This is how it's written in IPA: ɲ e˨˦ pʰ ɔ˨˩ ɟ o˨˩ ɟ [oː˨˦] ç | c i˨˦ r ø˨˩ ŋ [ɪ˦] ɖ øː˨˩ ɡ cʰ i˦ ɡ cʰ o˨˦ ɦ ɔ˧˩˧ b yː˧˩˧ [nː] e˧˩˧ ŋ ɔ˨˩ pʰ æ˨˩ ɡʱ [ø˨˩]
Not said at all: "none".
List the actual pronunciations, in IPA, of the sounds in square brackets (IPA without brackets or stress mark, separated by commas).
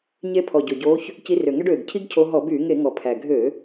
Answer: oː˨˦, ɛ˦, ŋ, ø˧˩˧